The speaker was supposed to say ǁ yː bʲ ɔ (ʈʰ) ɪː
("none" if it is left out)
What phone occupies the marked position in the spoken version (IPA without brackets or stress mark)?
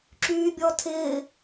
tʰ